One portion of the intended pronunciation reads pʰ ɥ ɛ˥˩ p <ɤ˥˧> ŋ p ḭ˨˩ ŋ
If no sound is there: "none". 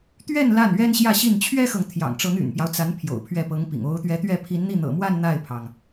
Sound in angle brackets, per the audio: ɤ˧˥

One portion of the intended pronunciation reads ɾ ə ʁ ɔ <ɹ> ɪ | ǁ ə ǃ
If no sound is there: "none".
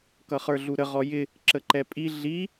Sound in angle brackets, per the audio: j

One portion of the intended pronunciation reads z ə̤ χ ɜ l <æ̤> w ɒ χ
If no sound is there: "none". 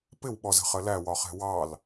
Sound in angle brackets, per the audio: æ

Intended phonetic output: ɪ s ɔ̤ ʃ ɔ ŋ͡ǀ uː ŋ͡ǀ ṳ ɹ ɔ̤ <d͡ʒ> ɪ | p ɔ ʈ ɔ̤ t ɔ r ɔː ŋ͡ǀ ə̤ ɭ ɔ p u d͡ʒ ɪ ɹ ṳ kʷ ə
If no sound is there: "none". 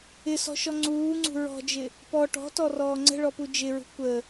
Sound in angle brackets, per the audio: d͡ʒ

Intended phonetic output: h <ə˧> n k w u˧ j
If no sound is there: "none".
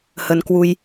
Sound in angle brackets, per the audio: ə˧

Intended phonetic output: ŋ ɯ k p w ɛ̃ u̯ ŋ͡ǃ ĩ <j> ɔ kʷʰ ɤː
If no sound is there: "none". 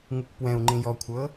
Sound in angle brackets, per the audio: j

